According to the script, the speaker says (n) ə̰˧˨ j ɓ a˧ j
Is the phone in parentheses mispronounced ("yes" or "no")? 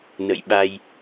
no